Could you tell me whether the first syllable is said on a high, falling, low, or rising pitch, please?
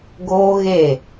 high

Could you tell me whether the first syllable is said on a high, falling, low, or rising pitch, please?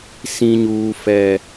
high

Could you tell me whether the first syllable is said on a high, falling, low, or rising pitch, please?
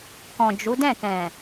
low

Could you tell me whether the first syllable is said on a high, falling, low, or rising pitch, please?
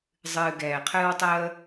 low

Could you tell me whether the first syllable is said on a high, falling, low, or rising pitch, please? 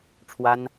high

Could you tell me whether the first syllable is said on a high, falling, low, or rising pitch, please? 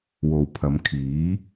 low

